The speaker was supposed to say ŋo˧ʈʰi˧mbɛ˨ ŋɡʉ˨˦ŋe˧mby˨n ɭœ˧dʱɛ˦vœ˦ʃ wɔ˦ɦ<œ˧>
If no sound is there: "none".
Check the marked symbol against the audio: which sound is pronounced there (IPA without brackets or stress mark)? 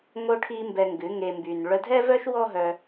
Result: œ˧